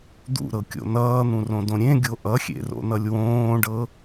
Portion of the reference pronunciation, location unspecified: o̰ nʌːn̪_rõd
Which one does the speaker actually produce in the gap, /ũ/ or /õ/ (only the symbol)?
ũ